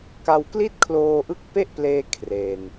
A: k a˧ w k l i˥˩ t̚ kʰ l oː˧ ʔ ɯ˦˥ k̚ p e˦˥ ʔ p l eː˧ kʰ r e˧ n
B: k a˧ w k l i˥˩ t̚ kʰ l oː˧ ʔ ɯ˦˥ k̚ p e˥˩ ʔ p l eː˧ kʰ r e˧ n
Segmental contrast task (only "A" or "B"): B